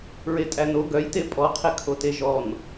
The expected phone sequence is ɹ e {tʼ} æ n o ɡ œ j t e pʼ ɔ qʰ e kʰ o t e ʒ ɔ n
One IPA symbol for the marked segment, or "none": tʼ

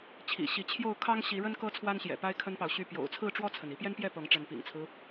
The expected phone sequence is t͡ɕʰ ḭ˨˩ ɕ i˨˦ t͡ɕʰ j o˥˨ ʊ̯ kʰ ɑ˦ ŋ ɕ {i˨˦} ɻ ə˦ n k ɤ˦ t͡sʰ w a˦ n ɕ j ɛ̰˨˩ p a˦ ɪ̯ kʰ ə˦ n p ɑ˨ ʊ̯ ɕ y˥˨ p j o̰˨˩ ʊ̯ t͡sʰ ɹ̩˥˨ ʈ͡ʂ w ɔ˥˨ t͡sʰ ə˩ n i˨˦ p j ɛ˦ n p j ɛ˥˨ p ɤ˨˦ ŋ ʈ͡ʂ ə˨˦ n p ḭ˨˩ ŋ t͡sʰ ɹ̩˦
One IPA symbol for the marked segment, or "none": i˨˦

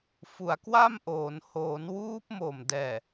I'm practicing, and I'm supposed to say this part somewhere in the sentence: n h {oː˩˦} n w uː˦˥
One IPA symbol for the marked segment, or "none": oː˩˦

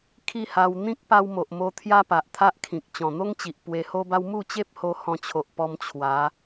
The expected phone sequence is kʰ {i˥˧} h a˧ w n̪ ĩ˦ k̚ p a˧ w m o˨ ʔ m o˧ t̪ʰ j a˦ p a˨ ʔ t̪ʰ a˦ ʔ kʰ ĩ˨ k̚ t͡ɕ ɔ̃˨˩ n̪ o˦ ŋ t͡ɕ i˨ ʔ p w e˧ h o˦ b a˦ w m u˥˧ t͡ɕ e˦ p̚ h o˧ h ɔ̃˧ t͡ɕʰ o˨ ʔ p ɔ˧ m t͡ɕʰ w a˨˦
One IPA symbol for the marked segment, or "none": i˥˧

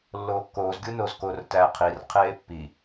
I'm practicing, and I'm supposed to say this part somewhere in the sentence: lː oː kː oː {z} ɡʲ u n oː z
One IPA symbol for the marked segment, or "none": z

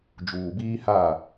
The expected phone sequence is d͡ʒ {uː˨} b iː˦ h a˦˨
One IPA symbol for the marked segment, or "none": uː˨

